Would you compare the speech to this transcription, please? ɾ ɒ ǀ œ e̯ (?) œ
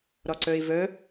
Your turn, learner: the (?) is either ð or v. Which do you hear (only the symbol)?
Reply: v